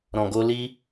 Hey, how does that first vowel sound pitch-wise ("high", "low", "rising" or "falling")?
low